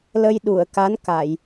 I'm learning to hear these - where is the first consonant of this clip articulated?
tongue tip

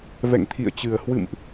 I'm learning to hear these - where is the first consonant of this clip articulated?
lips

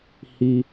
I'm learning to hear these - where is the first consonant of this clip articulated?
throat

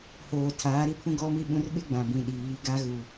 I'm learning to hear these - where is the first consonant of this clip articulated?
throat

